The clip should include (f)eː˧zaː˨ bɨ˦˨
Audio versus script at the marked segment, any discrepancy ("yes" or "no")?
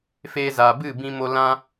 no